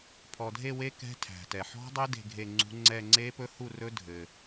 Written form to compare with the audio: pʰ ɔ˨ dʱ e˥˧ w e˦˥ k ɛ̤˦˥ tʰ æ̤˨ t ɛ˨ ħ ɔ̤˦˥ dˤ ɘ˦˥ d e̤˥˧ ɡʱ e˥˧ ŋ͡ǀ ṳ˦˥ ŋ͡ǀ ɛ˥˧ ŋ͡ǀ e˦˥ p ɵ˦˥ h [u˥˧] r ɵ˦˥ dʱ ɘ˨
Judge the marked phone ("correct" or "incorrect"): correct